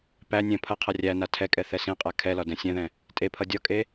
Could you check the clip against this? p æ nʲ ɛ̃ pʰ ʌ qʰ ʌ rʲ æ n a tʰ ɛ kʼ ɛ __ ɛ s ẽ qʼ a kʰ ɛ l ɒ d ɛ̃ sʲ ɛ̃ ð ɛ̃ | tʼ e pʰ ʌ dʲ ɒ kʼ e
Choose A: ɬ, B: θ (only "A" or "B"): B